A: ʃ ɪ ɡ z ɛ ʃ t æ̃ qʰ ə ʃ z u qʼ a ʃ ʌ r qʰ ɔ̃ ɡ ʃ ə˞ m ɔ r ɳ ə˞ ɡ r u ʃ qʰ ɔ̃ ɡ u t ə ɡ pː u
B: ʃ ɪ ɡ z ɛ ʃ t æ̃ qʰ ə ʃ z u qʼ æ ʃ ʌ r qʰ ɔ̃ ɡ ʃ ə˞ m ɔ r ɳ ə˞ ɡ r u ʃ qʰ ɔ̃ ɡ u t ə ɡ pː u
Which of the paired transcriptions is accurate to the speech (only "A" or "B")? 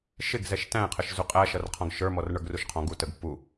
B